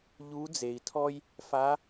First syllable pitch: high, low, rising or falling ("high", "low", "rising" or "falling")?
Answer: rising